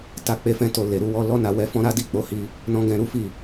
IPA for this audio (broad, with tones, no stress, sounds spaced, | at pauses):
t a˦ k͡p e˦ f ɛ̃˦ t o˦˨ l e˨ ɾ u˧ w ɔ˧ l ɔ˦ n a˧ w ɛ˧ f ɔ̃˦ ɾ a˦ d i˦˨ k͡p o˨˦ h i˧ | n ɔ̃˦ ɡ ɛ̃˧ ɾ u˦ f i˦˨